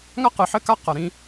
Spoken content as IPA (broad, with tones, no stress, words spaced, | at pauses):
ŋa˦qɨ˨ħɘ˦ka˦ qɐ˨ɾĩ˦